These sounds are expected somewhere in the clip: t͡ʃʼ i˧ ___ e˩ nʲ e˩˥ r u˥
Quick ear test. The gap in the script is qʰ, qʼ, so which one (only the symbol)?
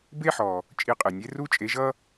qʼ